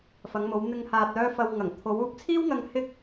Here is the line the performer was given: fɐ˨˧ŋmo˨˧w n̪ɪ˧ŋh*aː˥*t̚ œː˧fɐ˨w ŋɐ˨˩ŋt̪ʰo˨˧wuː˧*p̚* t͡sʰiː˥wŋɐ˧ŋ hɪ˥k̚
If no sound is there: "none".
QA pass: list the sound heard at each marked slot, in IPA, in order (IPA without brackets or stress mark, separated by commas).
aː˨, p̚